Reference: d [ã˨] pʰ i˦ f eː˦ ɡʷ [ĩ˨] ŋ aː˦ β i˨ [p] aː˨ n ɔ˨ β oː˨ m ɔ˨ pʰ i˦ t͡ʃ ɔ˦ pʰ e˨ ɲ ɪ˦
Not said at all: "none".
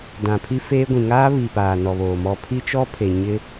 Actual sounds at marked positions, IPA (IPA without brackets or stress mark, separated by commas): ã˨, ĩ˨, p